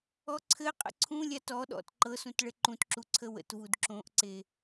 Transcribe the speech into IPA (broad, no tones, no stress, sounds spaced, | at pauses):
ɔ ǀʰ ɘ qʼ ə̰ ǀʰ ũ lʲ a t ɔ ɗ ɔ̰ t ǃ ɤ s ũ t ɭ ɘ ǃ ũ t ǁ u ǀʰ ə w ə̰ t v u d ǁ õ ʔ ǀ e